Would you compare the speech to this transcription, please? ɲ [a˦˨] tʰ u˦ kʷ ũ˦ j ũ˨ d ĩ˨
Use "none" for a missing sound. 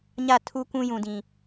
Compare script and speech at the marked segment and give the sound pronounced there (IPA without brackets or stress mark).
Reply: a˦˨